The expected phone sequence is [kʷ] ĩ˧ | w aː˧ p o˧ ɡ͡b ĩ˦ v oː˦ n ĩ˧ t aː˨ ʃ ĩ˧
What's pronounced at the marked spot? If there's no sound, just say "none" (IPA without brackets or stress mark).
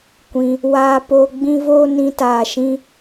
kʷ